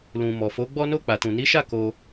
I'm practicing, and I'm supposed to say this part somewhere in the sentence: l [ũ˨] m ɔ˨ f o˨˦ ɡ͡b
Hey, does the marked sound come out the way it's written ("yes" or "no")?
yes